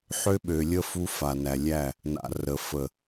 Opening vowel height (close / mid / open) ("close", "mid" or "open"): mid